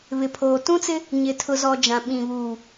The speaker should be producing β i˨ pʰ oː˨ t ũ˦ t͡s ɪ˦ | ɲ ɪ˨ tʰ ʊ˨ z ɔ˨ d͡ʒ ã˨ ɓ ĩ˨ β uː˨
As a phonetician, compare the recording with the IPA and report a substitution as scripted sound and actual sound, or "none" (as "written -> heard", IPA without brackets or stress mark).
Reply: i˨ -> ɪ˨